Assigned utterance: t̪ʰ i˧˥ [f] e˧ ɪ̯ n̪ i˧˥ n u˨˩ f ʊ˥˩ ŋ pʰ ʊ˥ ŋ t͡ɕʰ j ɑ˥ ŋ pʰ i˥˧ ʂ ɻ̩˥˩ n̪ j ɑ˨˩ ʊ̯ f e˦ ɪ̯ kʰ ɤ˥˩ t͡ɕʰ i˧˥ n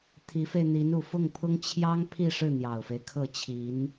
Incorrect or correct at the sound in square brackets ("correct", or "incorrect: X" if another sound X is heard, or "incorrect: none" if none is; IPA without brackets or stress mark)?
correct